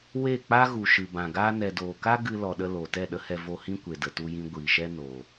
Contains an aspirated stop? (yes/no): no